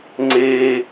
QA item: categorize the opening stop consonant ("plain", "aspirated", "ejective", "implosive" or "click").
click